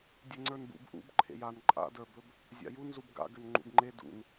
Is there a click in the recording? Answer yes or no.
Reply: yes